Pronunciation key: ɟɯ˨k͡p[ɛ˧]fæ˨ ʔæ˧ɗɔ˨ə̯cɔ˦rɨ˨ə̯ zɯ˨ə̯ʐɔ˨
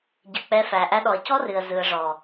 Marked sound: correct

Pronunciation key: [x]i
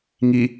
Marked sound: incorrect: ŋ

